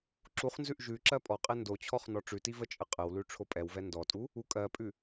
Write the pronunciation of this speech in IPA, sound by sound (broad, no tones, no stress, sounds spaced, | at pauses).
ǁ u χ n z ʉ ʔ ʒ ʉ ǁ ɜ pʼ ɔ qʼ ɛ n d o t͡ɕʰ ɔ χ n ɔ ʈ͡ʂ ʉ t i v ə t͡ʃʼ ə qʼ ə w l ʉ ʈ͡ʂʰ o pʼ ɛ w v ɛ n d ɔ tʼ u | u kʼ ɜ pʼ ʉ